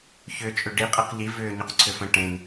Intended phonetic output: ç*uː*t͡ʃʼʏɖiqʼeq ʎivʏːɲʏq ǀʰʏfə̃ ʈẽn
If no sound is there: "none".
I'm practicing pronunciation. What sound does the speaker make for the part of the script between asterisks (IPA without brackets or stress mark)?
ʏː